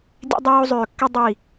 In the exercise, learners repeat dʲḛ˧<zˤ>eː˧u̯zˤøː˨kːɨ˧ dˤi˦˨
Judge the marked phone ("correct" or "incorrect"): incorrect